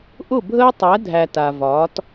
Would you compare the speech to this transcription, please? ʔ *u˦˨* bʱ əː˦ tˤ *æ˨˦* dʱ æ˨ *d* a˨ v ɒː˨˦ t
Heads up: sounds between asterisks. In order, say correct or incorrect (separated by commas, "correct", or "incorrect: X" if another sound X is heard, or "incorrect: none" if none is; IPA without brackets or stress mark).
incorrect: ʊ˦˨, correct, incorrect: t